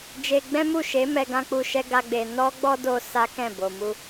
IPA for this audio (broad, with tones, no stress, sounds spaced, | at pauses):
d͡ʒ e˧ ɡ͡b ɛ̃˦ m u˦˨ ʃ e˨˦ m ɛ˧ ɡ ã˦ k͡p u˧ ʃ ɛ˦ ɡ a˦ ɡ͡b e˧ n ɔ˦ ɡ͡b ɔ˦ d o˧ s a˦ k ɛ̃˦˨ b o˨ m u˧